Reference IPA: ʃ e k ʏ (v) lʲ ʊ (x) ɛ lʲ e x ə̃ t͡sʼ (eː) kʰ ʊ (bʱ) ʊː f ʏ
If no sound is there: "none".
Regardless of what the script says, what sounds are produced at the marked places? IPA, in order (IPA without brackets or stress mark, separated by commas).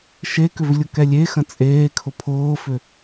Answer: v, k, eː, pʰ